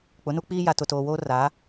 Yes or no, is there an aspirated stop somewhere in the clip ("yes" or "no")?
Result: no